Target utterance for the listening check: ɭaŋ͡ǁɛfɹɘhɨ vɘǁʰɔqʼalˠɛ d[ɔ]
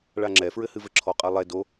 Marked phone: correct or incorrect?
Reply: incorrect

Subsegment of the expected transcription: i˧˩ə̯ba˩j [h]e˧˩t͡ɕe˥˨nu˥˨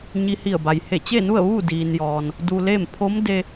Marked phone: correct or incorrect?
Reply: correct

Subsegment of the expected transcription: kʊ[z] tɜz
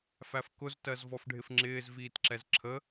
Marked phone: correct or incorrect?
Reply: correct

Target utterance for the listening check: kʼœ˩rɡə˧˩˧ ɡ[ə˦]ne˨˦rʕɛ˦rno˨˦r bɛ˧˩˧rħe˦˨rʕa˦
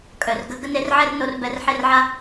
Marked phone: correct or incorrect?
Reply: correct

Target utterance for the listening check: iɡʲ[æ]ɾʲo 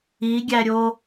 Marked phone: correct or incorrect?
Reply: correct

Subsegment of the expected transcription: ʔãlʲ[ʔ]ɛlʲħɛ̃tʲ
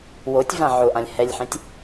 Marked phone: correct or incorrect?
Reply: incorrect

